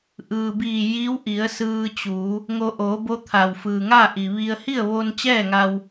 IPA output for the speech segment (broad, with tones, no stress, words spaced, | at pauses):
ʔɯː˩ biː˧˩ji˧˥wʔi˩˧ə̯ sɯː˧t͡ɕuː˩˧ | ŋo˧ʔoː˩˧ bo˧˥ t̪ʰa˩wfɯː˩ŋaː˥˨ʔi˩ ʋi˧ə̯ hi˥˨ə̯ʋo˧n t͡ɕɛː˥˨ŋa˧w